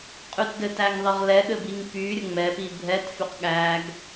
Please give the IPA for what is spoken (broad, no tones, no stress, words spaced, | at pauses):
qʼytdɘtæŋðˤɘʁ lɛɠɘbiŋ py ɾʲəŋ͡mɛpi bʱɛtfyq ɠæɡ